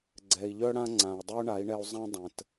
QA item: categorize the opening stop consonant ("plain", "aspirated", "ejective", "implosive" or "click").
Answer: click